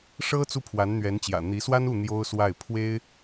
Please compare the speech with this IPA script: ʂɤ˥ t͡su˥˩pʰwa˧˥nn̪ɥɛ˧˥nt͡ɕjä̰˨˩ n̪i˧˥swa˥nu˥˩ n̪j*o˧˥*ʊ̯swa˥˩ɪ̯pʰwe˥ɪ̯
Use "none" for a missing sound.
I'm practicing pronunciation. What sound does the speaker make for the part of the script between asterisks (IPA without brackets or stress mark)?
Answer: o˥